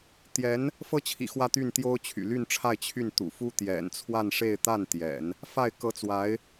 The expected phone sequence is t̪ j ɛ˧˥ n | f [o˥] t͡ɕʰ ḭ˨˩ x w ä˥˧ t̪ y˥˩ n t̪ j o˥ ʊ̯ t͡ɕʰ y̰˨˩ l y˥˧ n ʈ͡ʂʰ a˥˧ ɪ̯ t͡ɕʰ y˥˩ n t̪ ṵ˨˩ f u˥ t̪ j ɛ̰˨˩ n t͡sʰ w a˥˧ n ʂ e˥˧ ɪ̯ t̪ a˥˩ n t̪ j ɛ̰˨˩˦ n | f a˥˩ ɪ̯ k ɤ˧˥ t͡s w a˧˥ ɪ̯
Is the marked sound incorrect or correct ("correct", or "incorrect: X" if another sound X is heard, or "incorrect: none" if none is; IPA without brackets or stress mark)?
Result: incorrect: ɤ˥